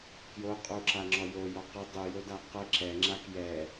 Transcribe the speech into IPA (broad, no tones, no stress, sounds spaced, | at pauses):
k j o qʼ u ǁ a ŋ͡ǁ ɔ j o j ɔ q ə dˤ u j o d a q ə ǁ ɛ ŋ͡ǁ a k j ɛ